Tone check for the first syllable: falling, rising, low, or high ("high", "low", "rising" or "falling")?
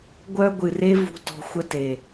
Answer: high